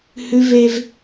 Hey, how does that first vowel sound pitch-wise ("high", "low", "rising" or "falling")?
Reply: high